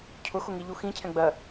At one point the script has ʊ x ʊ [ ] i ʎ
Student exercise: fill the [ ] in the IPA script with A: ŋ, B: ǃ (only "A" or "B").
A